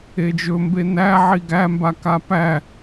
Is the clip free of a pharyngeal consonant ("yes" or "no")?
no